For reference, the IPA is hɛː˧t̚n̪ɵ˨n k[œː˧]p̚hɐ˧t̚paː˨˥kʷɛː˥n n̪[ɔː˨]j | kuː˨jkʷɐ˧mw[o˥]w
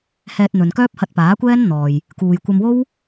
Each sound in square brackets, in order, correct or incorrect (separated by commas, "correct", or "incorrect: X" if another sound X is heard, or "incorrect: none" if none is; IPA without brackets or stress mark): incorrect: œː˥, correct, correct